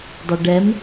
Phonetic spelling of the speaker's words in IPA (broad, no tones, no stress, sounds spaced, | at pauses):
dˤ ʌ ɖ ɛ m